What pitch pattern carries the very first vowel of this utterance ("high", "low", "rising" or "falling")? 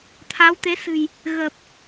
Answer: rising